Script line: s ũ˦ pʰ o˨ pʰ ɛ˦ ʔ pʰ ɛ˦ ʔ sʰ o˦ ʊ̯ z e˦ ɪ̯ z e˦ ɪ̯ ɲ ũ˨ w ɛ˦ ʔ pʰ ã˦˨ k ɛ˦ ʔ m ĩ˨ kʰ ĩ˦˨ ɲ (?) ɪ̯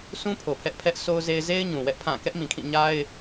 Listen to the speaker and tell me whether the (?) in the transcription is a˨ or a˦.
a˦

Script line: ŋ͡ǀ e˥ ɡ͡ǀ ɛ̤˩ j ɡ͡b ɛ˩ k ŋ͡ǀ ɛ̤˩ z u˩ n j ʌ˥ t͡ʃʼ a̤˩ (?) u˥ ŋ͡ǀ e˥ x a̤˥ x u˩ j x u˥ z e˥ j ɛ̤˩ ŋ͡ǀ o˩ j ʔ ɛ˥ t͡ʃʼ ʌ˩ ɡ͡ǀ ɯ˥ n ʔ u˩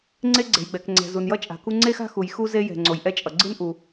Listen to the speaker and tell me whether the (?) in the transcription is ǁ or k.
k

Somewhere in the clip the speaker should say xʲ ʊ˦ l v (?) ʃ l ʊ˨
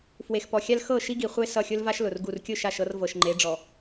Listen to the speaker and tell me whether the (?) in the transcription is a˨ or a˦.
a˦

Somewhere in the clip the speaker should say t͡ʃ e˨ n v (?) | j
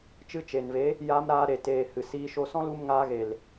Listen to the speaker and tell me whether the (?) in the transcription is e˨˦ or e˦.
e˨˦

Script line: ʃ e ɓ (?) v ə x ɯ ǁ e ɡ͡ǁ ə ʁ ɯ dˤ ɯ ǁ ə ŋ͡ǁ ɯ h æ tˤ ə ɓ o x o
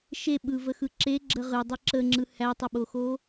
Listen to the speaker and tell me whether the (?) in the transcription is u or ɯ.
ɯ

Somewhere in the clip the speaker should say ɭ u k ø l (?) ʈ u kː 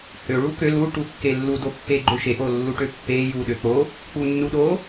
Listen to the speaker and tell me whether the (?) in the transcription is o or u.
u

